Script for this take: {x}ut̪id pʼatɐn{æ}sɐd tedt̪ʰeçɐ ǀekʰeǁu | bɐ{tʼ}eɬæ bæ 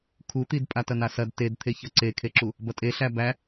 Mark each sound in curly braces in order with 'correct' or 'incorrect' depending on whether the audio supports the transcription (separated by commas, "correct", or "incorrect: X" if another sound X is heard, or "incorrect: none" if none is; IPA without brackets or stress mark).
incorrect: kʰ, incorrect: a, correct